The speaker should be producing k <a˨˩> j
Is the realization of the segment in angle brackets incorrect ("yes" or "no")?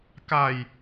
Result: yes